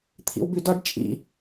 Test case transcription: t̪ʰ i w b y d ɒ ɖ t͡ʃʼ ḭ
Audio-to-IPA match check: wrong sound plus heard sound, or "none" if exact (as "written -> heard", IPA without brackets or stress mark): i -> ḭ